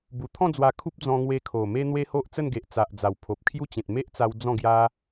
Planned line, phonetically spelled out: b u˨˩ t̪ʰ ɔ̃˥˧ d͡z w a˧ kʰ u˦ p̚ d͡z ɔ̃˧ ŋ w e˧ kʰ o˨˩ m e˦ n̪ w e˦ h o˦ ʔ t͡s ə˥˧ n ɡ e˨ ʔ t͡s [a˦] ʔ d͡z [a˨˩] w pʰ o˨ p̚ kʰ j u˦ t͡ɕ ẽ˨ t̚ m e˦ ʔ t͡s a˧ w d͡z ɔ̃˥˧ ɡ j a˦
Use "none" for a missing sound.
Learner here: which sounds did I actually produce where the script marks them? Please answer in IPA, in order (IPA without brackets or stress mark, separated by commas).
a˨, a˨˩